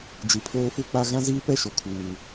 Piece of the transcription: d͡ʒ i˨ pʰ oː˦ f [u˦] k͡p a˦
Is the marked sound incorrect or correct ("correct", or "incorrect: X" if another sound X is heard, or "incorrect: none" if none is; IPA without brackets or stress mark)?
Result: correct